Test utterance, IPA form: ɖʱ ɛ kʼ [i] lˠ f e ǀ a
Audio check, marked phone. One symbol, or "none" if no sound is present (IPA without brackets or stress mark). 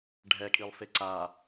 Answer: i